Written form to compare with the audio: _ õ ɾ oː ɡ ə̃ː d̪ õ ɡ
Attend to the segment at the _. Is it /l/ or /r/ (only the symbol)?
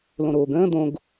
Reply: l